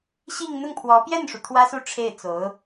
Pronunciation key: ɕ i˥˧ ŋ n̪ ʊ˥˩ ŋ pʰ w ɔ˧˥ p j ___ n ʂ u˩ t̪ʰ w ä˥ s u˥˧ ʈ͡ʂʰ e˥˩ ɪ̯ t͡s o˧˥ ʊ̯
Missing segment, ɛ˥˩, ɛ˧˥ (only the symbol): ɛ˥˩